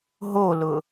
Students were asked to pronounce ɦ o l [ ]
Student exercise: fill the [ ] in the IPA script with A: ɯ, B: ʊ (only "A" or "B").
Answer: B